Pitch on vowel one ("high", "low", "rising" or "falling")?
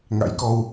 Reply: rising